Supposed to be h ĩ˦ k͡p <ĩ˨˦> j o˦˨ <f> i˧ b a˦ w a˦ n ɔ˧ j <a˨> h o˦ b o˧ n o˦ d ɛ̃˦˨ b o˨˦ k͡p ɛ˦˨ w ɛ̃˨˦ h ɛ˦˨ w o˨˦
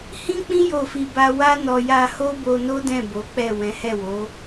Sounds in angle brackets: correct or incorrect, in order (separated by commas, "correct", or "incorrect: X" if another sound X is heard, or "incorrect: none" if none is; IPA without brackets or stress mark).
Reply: incorrect: ĩ˦, correct, incorrect: a˧